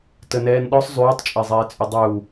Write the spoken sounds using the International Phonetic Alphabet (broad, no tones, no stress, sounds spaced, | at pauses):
t ə n ɛː n ɗ ɔ sˤ zˤ yː tˤ t͡ʃʼ e zˤ ɛː t͡sʼ ʏ dˤ u